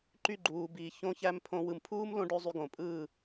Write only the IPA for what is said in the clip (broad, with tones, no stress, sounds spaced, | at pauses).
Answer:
ǃ y˦˨ ɡ͡ǃ uː˨ b iː˨ ç õ˧ ç æ˧ m pʰ õ˧ w ɯ˨ m pʰ uː˦ m l õ˧ ɖ ø˦ zˤ y˧ ɡ õ˨ pʼ ɯː˦˨